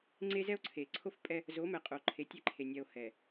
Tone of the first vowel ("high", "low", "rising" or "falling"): high